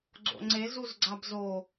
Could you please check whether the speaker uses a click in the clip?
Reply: yes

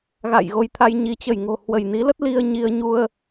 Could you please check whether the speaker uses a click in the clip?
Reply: no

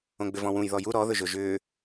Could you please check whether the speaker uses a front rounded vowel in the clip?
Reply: yes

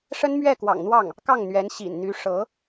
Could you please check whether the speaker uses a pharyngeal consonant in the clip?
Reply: no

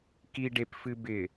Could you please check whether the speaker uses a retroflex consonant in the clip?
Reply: yes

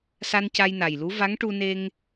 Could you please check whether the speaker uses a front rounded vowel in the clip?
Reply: no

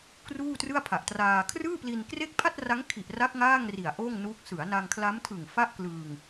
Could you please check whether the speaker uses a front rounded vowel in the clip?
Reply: no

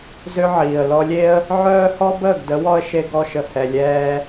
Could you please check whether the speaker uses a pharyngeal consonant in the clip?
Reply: yes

